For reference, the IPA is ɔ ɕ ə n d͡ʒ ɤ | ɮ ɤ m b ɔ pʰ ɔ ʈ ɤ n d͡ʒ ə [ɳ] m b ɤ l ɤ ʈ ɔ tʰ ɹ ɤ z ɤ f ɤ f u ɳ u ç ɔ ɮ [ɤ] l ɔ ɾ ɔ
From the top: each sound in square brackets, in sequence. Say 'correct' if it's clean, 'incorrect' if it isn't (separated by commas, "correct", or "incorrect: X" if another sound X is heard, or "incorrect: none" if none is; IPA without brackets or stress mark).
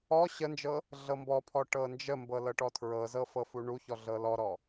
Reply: incorrect: none, correct